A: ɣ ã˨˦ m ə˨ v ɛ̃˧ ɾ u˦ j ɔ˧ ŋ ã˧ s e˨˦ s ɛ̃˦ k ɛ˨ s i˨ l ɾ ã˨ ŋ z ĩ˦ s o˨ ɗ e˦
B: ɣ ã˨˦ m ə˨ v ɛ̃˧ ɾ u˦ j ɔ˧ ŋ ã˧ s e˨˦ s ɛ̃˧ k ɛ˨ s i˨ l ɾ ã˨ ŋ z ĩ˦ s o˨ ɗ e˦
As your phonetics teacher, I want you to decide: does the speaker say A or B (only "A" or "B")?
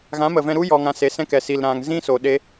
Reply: A